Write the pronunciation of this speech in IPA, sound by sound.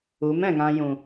u˨˦ m ɛ̃˨ ŋ ã˧ j ũ˨

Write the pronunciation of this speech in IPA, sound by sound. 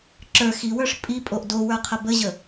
ǁ ə˞ x i w ə˞ ʂ pʼ i pʼ o ʔ d o w ə˞ qʰ ə b ə ʑ ə

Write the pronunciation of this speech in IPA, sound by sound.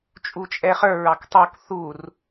t͡ʃʼ u t͡ʃʼ ɛ χ ə˞ ɹ ɑ k tˤ u k θ u r

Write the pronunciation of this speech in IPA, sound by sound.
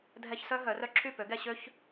dʱ ɛ˦ ç s œ˦ ɦ œ˨˦ r œ˦ ǁʰ y˦˨ p ø˨˦ ɡ ɛ˧ ɕ ø˦ ç

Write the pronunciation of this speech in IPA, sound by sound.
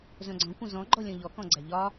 z œ̃ ɡ͡ǀ ɔ̃ kʷ œ̃ z ɔ̃ ɡ͡ǃ ɔ lʲ ɔ̃ ʎ ɔ k ɔ̃ ɡ͡ǀ æ ʎ ɒ

